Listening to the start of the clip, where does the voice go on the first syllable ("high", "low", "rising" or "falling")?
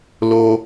high